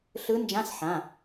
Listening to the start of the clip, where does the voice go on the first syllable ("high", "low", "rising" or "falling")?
rising